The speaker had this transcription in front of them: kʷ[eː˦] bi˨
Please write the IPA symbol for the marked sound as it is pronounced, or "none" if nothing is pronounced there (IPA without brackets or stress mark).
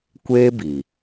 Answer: eː˦